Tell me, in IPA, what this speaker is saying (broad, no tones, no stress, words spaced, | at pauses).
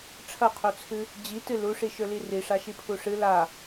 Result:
ʈ͡ʂʰɐqʰot͡sʰɨ | d͡ʑitɨ luʂiʃɵli riʂaʃipʰu ʂɨ la